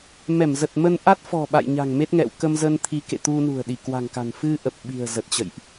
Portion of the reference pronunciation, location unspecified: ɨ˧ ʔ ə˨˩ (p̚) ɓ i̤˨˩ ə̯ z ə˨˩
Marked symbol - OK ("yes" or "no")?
yes